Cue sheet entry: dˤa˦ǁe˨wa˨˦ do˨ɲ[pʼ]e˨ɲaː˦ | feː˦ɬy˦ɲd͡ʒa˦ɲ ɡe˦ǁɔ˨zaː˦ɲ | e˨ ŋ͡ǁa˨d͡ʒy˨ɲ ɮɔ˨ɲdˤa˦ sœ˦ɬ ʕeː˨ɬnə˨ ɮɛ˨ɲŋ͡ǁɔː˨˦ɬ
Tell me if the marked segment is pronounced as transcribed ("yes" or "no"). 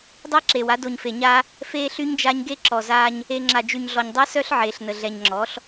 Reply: no